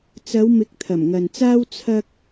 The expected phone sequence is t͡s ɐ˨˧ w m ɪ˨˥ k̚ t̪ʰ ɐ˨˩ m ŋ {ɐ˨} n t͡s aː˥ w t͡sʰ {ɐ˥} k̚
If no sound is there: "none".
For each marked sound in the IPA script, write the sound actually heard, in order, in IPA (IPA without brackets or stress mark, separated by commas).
ɐ˨, ɐ˥